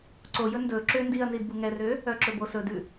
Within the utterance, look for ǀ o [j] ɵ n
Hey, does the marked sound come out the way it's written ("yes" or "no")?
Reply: yes